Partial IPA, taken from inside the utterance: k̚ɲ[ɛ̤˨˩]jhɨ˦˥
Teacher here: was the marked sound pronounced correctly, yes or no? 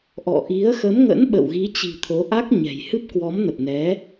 yes